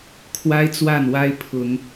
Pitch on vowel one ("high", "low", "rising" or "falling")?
high